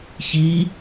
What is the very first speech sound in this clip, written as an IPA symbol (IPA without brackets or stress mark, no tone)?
ç